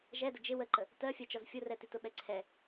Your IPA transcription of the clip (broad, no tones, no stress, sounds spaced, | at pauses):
ʒ ɛ d ə d͡ʒ ɪ w ə ǃ ə | t ɜ fʲ ɜ t͡ʃ ɔ z fʲ ʊ r ɛ t i t ʊ ɓ ɛ ǀʰ ɛ